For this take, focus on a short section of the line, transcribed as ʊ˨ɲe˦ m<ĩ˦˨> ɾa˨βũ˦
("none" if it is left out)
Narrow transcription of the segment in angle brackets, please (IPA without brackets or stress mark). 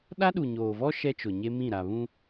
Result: ĩ˦˨